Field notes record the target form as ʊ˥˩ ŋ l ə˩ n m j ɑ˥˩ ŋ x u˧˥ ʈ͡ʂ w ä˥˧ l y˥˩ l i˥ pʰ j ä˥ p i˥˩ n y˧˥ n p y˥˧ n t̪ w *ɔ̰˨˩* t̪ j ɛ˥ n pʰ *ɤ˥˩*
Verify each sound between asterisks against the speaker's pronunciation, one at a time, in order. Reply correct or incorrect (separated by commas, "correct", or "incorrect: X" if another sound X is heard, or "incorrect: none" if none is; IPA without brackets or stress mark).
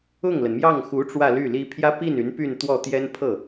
incorrect: ɔ˥˩, correct